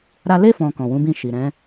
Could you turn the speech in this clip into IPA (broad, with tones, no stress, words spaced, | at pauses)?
ɾa˧le˦ fɔ̃˧kɔ̃˨wũ˨˦bĩ˦˨ ʃi˨ɾɛ̃˨˦